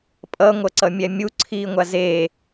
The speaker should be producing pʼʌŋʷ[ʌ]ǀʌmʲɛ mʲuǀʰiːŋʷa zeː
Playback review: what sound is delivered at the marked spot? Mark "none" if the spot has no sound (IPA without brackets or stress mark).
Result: ʌ